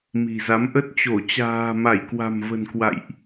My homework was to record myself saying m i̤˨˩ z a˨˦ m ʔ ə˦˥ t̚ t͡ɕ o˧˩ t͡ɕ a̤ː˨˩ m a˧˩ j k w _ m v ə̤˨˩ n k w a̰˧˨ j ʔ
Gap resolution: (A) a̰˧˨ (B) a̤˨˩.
B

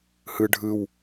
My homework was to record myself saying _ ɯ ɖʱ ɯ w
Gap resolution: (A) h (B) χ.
A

